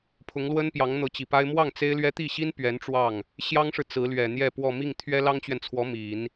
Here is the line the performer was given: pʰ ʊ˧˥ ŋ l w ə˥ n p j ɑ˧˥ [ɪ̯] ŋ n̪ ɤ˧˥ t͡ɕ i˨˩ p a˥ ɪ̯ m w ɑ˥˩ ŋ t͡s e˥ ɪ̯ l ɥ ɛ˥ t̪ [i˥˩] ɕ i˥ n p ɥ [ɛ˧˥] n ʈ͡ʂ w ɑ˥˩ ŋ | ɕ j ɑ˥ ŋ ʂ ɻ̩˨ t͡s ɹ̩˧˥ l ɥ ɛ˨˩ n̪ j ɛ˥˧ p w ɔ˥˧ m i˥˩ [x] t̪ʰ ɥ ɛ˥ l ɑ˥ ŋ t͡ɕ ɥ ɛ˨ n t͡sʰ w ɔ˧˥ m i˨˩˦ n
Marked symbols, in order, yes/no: no, yes, yes, no

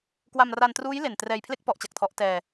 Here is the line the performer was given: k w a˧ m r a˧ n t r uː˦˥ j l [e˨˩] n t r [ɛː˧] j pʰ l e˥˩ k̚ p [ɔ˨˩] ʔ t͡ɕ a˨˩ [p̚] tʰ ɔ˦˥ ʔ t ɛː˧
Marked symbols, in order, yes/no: yes, yes, no, no

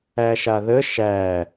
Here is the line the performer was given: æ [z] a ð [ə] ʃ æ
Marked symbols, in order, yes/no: no, yes

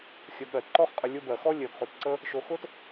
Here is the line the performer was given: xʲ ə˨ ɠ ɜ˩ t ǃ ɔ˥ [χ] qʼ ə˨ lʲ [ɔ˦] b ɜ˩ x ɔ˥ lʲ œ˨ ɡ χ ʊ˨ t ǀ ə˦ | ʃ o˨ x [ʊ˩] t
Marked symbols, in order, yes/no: yes, no, no

